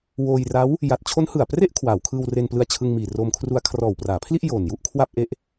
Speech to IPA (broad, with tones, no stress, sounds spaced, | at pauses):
w oː˧ j r a˦˥ w | j a˨˩ t̚ t͡ɕʰ o˦˥ n h ɯ˨˩ a̯ p r e˥˩ ʔ kʰ w aː˩˦ w kʰ ɯː˧ w r e˧ n p l ɯ˧ a̯ t͡ɕʰ ɯ˧ ŋ m iː˨˩ r oː˧ m kʰ r u˧ a̯ kʰ r ɔː˨˩ w p r aː˩˦ pʰ l i˥˩ ʔ j oː˨˩ n j u˥˩ ʔ kʰ w a˥˩ p̚ ʔ e˥˩ ʔ